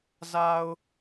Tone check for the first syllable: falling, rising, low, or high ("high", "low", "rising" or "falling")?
low